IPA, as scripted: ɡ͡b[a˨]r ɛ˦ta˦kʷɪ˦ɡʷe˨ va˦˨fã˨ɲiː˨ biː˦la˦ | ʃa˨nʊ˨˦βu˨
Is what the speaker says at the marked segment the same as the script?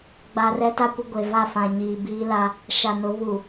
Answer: yes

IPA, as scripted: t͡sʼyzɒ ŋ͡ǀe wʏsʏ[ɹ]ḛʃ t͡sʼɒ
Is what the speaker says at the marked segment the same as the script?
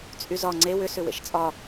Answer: no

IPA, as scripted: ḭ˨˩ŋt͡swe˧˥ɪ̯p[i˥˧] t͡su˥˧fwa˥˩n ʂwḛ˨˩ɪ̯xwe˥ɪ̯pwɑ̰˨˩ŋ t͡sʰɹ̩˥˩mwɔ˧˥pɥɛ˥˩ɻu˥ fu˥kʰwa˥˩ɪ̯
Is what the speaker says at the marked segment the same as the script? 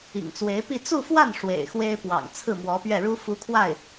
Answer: yes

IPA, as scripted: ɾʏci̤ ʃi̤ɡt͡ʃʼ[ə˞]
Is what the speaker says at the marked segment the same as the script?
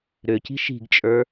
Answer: yes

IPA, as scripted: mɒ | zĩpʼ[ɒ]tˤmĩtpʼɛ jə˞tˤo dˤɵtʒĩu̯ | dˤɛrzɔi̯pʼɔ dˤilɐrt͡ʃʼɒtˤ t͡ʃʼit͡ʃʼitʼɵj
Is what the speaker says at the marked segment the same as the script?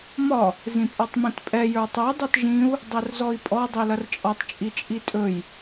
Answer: yes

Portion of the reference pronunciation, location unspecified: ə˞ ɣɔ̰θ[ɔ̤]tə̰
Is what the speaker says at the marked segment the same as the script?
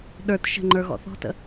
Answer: yes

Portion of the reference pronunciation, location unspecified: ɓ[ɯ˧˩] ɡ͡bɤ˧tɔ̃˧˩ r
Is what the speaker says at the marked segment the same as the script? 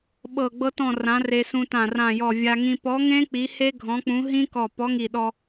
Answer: no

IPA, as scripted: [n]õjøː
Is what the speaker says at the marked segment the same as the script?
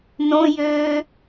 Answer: yes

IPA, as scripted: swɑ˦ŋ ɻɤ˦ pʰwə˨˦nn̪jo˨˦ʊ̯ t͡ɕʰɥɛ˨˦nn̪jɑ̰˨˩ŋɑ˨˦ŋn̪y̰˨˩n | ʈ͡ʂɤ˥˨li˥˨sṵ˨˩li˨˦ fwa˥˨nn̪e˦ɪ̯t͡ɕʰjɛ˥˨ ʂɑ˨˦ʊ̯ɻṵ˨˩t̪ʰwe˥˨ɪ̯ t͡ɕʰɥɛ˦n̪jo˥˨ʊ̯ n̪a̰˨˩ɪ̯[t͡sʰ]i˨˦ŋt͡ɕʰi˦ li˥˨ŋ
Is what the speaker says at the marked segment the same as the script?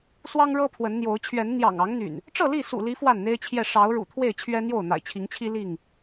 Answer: no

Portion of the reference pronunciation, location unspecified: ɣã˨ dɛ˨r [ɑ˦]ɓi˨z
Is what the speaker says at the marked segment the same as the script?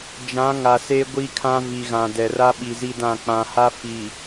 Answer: no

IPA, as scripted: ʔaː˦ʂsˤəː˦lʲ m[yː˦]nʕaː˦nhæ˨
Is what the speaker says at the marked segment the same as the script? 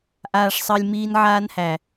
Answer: no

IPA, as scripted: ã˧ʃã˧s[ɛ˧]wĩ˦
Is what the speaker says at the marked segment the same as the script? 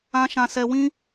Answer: yes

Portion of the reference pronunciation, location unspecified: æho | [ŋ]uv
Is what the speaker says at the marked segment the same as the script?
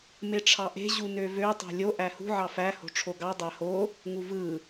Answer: yes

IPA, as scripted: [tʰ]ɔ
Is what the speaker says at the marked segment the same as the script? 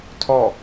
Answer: yes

